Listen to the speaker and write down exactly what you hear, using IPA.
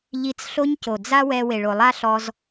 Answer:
ʎ i˧ t͡s ɬ o˦ ɲ c o˨ d͡z a˦ w ɛ˧ w e˨ ɭ o˨ lˠ a˦ ɬ ɔ˧ z

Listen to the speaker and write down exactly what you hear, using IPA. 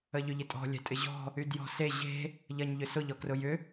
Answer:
ə ʎ ʏ ʎ ɪ tʼ ɔ̤ lʲ ɛ̤ tʼ ɪ ʑ ɔ̤ | y d j ɔ̤ s e ʑ e̤ | ʎ ɐ ɲ ʎ ʏ s ʊ ʎ ɔ k r ʊ j ʏ

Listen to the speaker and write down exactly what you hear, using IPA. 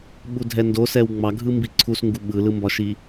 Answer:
ɓ u dʱ ɛ n d o s ɛ w ŋ͡m ɑ ɡʱ ɯ m b i ǀʰ u s ŋ ɡ u ɓ ɯ l ɯ m b ɒ ʃ i

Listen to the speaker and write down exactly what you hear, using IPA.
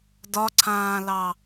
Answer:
d ɒ ǀʰ ãː l ɑ

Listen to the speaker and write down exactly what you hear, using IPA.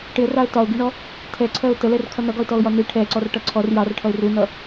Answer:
ʈ ɪ ə̯ r ɑ ə̯ t ɒ ʊ̯ ɡ i ɳ ɔ | tʰ ɛ ǀʰ ɜ ʊ̯ t ə l ɛ r kʰ ʌ n ʌ ɡ ɒ ɪ̯ t ɔ ʊ̯ j ɒ n i ʈʰ ɛ ǀ ɔ r ʈ ʌ ǀʰ ɔ r j ɑ r ʈʰ ʌ ɪ̯ r u n ʌ

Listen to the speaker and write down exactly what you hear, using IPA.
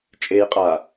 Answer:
t͡ʃʼ e j qʼ a

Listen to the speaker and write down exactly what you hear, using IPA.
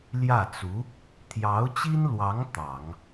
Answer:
l j ä˥˩ t͡s u˧˥ | t̪ʰ j ɑ˧˥ ʊ̯ t͡ɕ i˥ n l w ɑ˧˥ ŋ t̪ ɑ˨˩˦ ŋ

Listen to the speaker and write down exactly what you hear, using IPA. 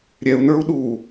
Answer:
ɾʲ ɛ u̯ n ə˞ u̯ ɗ u

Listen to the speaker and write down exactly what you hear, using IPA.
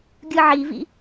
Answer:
ɡʲ ɯ ʕ i v ḭ

